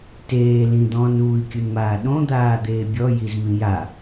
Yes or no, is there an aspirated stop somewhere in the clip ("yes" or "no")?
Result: no